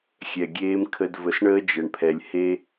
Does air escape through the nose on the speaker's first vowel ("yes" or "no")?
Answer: no